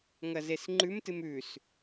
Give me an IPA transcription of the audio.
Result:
ŋ ɐ z e s ŋ͡ǃ ʉ m t ɨ m ʉ s

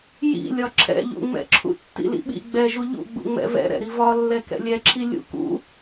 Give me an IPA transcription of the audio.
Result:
j ḭ lʲ ɒ ǁʰ ɛ̰ ʎ ṵ ŋ͡m ɛ̰ ǁʰ ṵ tː ḭ l ḭ ɓ ḭ ɡ͡b ɛ ʒ u ʎ ṵ ɡ͡b ṵ ŋ͡m ɛ̰ v ɛ̰ ɾ ɛ̰ ɾ i v ɒ lː ɛ k ɛ̰ lʲ ɛ ǁʰ i lʲ ṵ k ṵ

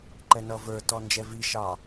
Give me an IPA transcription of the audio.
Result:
ǃ ɛ n ʌ v ə˞ t ɔ n d͡ʒ ɛ v i ʃ ɑ

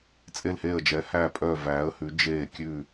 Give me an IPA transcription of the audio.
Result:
t͡sʼ e˧˩ l h eː˧˩ ə̯ d͡ʒ ɛ˩˧ h æ˧˩ pʼ œ˧˩ v æː˩˧ ə̯ h ʉ˩˧ d͡ʒ eː˧˩ kʲ ʉ˧˩

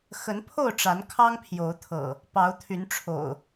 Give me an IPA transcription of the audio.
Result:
x ə˨˦ n pʰ o˥˨ ʊ̯ ʈ͡ʂ a˨˦ n kʰ ɑ˦ ŋ pʰ j o˨˦ ʊ̯ t̪ʰ ɤ̰˨˩ | p ɑ˨˦ ʊ̯ t̪ʰ y˨˦ n ʈ͡ʂʰ o̰˨˩ ʊ̯

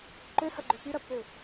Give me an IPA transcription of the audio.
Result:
ǃ ø h ɐ ɡ͡ǃ ø p y ɾ ɐ pː ø

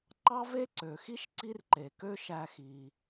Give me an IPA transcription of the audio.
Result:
ǃ ɑ˥ v e˥ ǀ ø˩ x i˥ ʃ ǀ i˥ r ǃ e˩ k ø˥ ʃ æ˧ x i˩

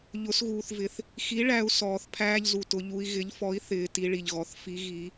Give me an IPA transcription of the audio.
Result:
ʎ ʊ˩˥ s ɣ uː˩ θ v ɪ˩ θ | x i˩˥ ɭ æ˩˧ u̯ s ɔː˩ θ pʰ æː˧ ʎ z u˩ t ʊ˩˧ ʎ u˩˧ i̯ ɣ ɪ˩˥ ʎ f ɔ˩˥ i̯ θ ɪː˩˧ t i˩˧ ɭ i˩ ʎ ɣ ɔ˩ θ f i˩˧ ɣ i˩˧

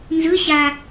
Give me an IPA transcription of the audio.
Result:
n z ɯ ɕ a

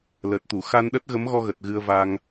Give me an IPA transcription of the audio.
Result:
l ə˨˩ t̚ t̪ u˧˩ x a˧ n ɗ ə˦˥ t̚ ɣ ə˨˦ m ɣ ɔ˧ ɣ ə˨˩ t̚ ɣ ɨ˧ ə̯ v a˧ ŋ

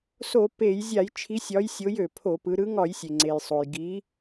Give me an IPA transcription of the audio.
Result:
s o˧˩˧ p e˧˩˧ j zʲ a˧˩˧ j t͡ʃʰ i˨˦ sʲ ɒ˨˦ j sʲ o˨˦ j ø˩ pʰ o˧˩˧ p ɯ˨˦ ɾ ɯ˨˦ ŋ ɒ˧˩˧ j sʲ e˩ ŋ͡ǀ e˩ j sˤ o˩ j ɡ i˨˦

